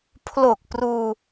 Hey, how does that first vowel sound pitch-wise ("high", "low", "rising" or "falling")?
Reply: low